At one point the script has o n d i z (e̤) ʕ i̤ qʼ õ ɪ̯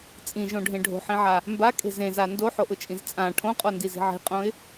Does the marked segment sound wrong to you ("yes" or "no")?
yes